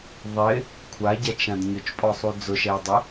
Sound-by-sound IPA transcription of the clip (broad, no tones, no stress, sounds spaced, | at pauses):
ðˤ ɪ | kʷʰ a ɟ a t͡ʃ ã d ɲ ʊ t͡ʃ pʼ ɔ sˤ u d͡z ʊ ʃ ɛ j dˤ ɛ